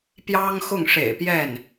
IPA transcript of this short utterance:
pjɑ˥ŋxʊ˥˩ŋʂḛ˨˩ɪ̯pjɛ˥˩n

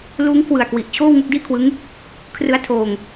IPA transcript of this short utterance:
luː˦˥ŋkʰwɯ˨˩a̯ kwi˨˩ʔ t͡ɕʰoː˥˩wŋu˥˩k̚diː˥˩kʰwɯ˦˥ŋ | kʰrɯ˦˥a̯tʰoː˧ŋ

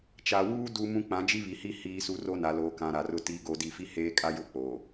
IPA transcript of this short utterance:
t͡ʃa˨wuː˦ du˦mũ˦ k͡pã˨˦d͡ʒi˦βi˨hi˦ hiː˦su˦ ro˦na˨loː˨kã˨ ɾa˨rʊ˦ tiː˨ɡo˨ di˨ fi˦heː˦ kʼa˦jʊ˦ k͡poː˨

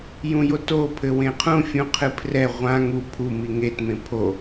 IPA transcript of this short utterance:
jũjoto pʰɘwẽqʰũ fʲũqʰɨpʰrɛ ʁʷã ŋu pʰu miŋet mẽpʰo

